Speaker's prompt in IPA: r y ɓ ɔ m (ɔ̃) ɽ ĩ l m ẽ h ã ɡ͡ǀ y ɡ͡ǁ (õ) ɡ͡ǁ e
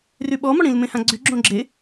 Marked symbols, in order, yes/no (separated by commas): no, yes